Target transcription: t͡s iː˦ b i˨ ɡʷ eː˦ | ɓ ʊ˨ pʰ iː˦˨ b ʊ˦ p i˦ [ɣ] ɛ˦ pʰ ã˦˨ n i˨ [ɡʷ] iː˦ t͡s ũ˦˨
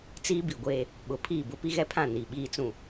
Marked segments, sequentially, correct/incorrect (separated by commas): correct, incorrect